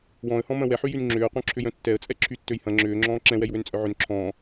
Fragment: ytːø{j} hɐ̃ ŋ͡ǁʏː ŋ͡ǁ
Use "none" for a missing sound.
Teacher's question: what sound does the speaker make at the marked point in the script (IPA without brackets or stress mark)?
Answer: j